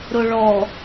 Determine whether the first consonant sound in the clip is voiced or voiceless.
voiced